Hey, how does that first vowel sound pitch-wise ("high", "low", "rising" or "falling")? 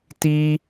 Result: high